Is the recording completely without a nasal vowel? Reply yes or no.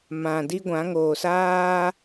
no